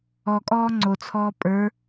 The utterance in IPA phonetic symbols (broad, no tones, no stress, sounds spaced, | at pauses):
ɔ kʼ ɔː ŋ͡ǀ o t͡sʰ ɔː pʼ ə˞